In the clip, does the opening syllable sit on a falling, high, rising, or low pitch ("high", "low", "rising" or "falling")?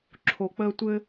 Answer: low